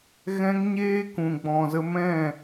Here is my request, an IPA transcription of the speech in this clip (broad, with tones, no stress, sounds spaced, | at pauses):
ɣ ɛ̃˧ ŋ ɲ eː˦ k ũ˨ ɡ͡b ɔ̃˨ z ə˧ m ɛ̃˦˨